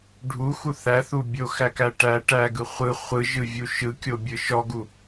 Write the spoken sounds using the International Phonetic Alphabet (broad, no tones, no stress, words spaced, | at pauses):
ɖʱuxu θæθu bʲoxækæ ʈæ ʈæɡɯ χʷɯ χʷɯʒɯvʲu ʃɯkʲobʲɯ ʃɔɡu